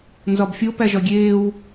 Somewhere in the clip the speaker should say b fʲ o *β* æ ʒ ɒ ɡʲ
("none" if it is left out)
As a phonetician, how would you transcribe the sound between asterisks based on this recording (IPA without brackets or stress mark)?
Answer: p